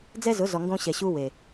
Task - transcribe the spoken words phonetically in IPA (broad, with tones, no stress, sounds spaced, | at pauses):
d͡z ɛ˦ z ʊ˨˦ z ɔ˨ ŋ ɡ õ˦ ɕ ɛ˨ ɕ u˦ w e˨